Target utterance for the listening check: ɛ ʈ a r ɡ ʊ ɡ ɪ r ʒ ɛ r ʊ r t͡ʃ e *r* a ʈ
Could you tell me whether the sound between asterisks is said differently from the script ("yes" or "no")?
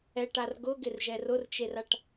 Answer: no